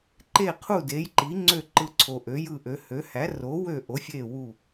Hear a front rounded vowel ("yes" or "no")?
yes